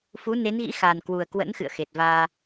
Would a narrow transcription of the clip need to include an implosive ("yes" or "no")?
no